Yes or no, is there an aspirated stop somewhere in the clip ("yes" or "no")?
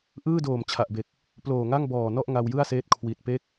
yes